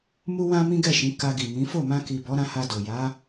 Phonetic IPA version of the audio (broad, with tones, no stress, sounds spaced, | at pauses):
m u˦ w ã˦ m ĩ˦ ɡ ɛ˦˨ ʃ ĩ˨˦ k a˧ ɡ i˨ m ĩ˨˦ f o˦˨ m ã˧ k i˨ b ɔ˨˦ ɾ ã˧ h a˧ d o˨ j a˨˦